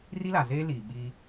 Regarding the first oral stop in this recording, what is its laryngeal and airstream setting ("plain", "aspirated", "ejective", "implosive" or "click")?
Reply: implosive